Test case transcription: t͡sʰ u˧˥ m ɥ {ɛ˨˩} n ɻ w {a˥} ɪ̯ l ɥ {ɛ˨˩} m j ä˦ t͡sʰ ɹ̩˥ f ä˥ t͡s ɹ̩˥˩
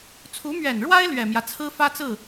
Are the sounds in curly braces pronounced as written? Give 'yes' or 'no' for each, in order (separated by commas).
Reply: yes, yes, yes